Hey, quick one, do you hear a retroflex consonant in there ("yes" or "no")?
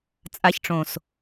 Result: yes